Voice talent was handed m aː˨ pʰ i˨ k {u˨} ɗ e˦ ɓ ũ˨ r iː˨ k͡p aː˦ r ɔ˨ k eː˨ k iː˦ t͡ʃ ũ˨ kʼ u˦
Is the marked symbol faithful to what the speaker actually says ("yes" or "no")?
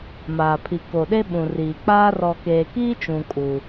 no